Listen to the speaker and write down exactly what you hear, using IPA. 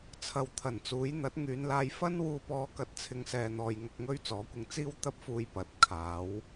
t͡sʰɐ˧wt̪ʰɐ˨˩nt͡suː˨˥j n̪ɐ˨˥t̚ŋyː˨˧nlaː˧j fɐ˥nwuː˧pɔː˧ kɐ˧t̚t͡sʰɪ˧ŋsɛː˨n̪ɔː˨j ŋɐ˧k̚ŋɵ˥ɥt͡sɔː˨˥kʷɪ˧ŋ t͡siː˥wt̪ɐ˥p̚fuː˧j pɐ˨˥t̚kʰaː˨˥w

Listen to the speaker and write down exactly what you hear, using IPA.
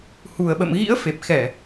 hu˨˩ə̯ɓə̰˧˨m ɣḭ˧˥ə̯ fe˨˩p̚xɛ˧˩˨

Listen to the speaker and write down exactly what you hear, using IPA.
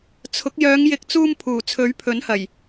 t͡sʰʊ˨˥k̚ jœː˨˧ŋjɪ˨˥k̚t͡suː˧mpʰuː˨˩ t͡sʰɵ˨˥ɥpʰɵ˨˥nhɐ˨˩j

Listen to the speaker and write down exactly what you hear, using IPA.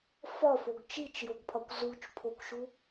fɒfoɡ t͡ʃit͡ʃjoɡpʰɒkʷ zut͡ʃpʰokʷʃu

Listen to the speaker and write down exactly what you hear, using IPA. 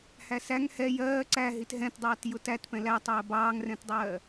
hæsæŋ hɛ jɜː ǀæɦit ɦɛ̃tdˤɑːt jʊtætpɛ̃ lætˤɜː bɑːŋrɛ̃tdˤɜː

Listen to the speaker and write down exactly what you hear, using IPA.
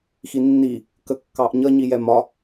xinːi | kəkːɑʔɲʌ ɲijɛmɒ

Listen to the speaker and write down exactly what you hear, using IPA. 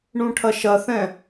ɳũʈʰɐʃɐθɛ̃

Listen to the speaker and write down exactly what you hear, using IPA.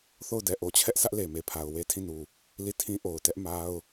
θo˦˨ʊ̯dɛ˨ ʔo˨t͡ɕʰɛ˦ʔ sʰä˦ʔle˨me˨pʰa˨ʊ̯ we˦ tʰĩ˦˨nu˨ | li˦˨tʰĩ˦ ʔo˨ʊ̯tɛ˦ʔ ma˦ʊ̯

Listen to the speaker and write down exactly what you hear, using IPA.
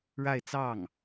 ɻa˥˧ɪ̯t͡sɑ˥˩ŋ

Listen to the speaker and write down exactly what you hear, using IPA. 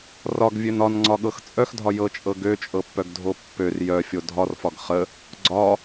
rɒɡvʲøn ɒnŋ͡ǀɒɠɤx t͡sʼœxdʱɒ jɤt͡ʃʼɤ ɡøt͡ʃʼɤpːœɡdʱo pːør jœfʲo dʱɒrfɒɡ χə | ɡ͡ǀɒ

